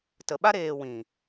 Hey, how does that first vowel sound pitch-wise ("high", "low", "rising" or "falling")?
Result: low